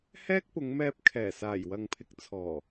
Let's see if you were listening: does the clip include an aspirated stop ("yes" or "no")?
yes